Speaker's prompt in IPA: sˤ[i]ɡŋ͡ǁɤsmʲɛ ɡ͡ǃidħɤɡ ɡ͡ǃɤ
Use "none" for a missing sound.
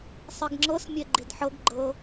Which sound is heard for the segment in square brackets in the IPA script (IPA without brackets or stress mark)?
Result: i